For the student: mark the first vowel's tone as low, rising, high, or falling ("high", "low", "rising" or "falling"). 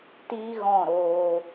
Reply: high